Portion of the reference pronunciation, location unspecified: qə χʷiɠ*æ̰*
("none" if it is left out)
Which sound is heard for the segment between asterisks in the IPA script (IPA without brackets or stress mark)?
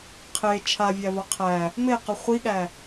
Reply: æ